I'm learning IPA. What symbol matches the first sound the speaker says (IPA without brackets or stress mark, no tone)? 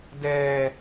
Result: d